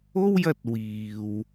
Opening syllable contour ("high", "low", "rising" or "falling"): high